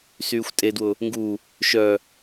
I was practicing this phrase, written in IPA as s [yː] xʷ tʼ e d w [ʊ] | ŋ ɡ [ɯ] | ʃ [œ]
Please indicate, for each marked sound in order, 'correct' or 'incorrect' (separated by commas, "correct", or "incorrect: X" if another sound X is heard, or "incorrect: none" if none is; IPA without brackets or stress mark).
correct, correct, incorrect: u, correct